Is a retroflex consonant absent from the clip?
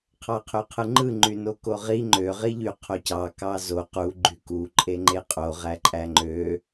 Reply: yes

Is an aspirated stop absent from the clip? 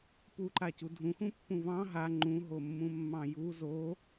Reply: yes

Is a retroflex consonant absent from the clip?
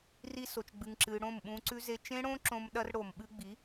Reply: no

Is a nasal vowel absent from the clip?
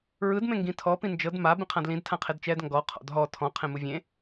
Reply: no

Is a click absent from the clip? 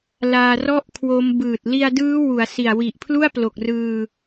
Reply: yes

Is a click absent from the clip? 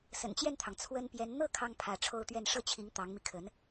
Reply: yes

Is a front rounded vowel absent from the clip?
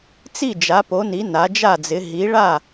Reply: yes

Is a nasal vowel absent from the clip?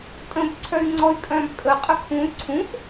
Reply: no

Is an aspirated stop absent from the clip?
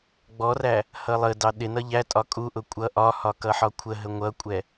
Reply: no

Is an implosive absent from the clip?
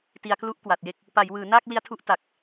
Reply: yes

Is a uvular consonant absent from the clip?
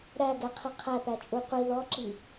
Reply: no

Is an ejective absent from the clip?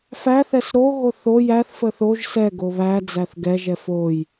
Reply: yes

